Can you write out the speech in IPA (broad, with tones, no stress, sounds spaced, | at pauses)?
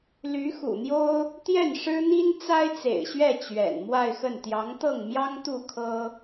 l y˧˥ x ṵ˨˩ n̪ j o˥ ʊ̯ | t̪ j ɛ˥˩ n ʂ ɻ̩˥ n̪ i˥ n t͡s a˥ ɪ̯ t͡s ḛ˨˩ ɪ̯ ɕ ɥ ɛ˥˩ t͡ɕ ɥ ɛ̰˨˩ n m w a˥˧ ɪ̯ x ə˥˩ n t̪ j ɑ˧˥ ŋ t̪ ɤ˥˩ ŋ m j ɑ˥ ŋ t̪ u˥˩ kʰ ɤ˥